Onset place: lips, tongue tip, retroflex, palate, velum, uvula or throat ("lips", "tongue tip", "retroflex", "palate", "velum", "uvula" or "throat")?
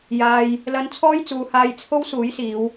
palate